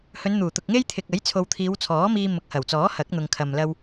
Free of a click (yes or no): yes